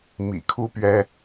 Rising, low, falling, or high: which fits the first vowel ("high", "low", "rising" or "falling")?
low